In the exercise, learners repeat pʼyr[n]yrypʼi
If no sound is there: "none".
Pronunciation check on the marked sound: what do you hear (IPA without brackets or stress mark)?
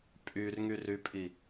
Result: ŋ